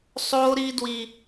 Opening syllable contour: high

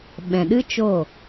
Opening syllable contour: low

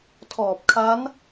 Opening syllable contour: low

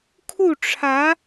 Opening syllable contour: falling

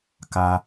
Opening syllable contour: high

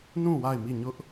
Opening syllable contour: falling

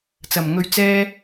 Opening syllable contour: low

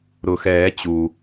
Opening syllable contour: low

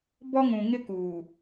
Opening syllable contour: high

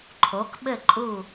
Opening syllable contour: rising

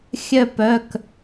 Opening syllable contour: falling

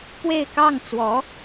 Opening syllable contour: falling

